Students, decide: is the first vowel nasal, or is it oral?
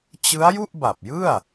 oral